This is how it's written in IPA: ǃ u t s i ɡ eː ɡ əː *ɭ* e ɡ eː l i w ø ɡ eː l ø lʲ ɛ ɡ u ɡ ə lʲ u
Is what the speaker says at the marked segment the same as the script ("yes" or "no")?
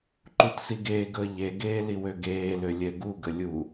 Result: no